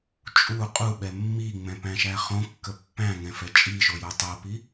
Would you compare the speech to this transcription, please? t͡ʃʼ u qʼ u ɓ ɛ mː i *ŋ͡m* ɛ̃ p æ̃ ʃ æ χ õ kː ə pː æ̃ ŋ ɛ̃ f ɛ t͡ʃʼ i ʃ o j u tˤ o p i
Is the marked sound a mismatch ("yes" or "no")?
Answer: no